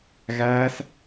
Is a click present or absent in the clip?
absent